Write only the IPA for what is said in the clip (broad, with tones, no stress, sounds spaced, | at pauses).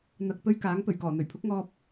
n̪ ɐ˨ k̚ p ɵ˥ ɥ k aː˨˥ ŋ p ɵ˨˩ ɥ k ɔː˨˩ n̪ ɵ˨˩ ɥ pʰ ʊ˨˥ k̚ ŋ ɔː˧ p̚